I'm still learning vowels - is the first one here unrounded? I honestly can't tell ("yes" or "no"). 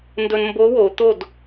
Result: no